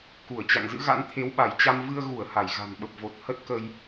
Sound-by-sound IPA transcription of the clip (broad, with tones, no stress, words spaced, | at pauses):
ku˧˩ə̯t͡ɕa̰˧˨ŋzɨ̰˧˥ɣa̰˧˥n t̪ʰe˨˦wɓa˧˩jt͡ɕa˧m vɨ˧ə̯ɣu˧˩ə̯ ha˧˩jɣa̤˨˩nɓə˨˩p̚vo˨˩t̚ hə˦˥t̚kə˧j